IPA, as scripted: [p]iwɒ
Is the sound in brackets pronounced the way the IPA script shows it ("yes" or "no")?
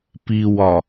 yes